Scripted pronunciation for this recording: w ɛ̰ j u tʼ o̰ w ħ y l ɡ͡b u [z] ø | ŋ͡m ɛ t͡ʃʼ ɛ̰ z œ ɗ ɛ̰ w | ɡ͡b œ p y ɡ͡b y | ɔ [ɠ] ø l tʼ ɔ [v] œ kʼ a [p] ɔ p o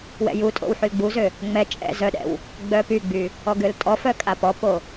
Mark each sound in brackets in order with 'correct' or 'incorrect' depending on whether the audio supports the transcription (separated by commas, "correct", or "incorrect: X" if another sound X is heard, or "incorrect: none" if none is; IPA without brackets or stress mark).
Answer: correct, incorrect: ɡ, incorrect: f, correct